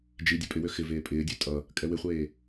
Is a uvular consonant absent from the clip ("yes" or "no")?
no